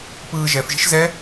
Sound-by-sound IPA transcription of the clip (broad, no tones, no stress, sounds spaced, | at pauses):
p ɯː ʒ ɛ f ʒ i̤ ʃ z ɛ